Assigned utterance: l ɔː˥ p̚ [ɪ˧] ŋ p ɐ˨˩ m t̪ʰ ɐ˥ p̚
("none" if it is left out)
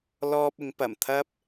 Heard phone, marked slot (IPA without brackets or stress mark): ɪ˨˥